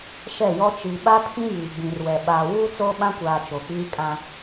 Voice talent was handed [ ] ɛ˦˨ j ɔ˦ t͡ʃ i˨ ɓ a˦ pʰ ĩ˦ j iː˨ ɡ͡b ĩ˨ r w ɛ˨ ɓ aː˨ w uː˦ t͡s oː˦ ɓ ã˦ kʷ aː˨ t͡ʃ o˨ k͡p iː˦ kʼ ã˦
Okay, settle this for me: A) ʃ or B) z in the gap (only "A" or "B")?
A